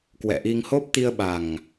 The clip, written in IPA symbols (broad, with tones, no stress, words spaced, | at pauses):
kwɛ̰˧˨ʔi˧ŋho˦˥p̚ t̪i˧ə̯ɓa˨˩ŋ